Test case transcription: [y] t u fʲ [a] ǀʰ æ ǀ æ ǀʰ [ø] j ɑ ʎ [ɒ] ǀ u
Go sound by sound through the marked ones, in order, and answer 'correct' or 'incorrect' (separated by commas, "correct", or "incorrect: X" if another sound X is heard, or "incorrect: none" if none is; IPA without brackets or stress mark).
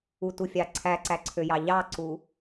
incorrect: u, incorrect: ɑ, correct, incorrect: ɑ